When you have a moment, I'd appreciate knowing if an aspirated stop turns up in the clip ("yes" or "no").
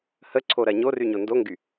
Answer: yes